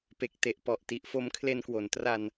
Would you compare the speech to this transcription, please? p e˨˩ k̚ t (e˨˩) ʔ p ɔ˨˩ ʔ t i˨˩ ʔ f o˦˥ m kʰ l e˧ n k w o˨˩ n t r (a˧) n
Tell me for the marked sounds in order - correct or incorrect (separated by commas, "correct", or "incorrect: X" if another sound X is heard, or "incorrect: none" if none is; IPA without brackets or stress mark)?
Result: correct, correct